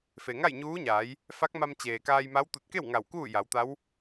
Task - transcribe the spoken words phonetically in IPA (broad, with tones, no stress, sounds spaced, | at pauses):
f e˩ ŋ a˥˨ j ɲ uː˧˥ ɲ aː˩˧ j | f a˧˥ k̚ m a˧ m t͡ɕ eː˩ k aː˧ j m a˧˥ w t̪ u˧˩ t̚ k e˥˨ w ŋ a˧˩ w k uː˥˨ j a˩˧ w t̪ a˧˥ w